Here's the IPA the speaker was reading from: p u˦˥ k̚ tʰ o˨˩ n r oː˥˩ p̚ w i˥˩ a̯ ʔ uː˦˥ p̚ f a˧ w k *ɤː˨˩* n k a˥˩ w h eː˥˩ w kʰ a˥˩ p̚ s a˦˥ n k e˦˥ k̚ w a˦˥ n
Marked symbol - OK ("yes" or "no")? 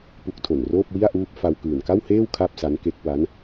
no